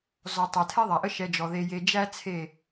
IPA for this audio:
z ɔ˨ tˤ æ˨ tʰ ɛ˦ ðˤ a˨ ʔ ə˦ ʃ ɛ˧ d͡ʒ ɔ˨ ð e˧ j e˧ d͡ʒ æ˦ t͡sʰ e˦˨

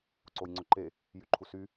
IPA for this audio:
ǀ o j ŋ͡ǀ ʊ ǃ e | j y ǃʰ u s y

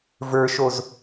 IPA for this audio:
v ə˞ ʃ o z

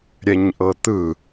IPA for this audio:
ɾʲ ɛ ɲ ʔ ɤ t̪ ɯ

